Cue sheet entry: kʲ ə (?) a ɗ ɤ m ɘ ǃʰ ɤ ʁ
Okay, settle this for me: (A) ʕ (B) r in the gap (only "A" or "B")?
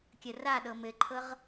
B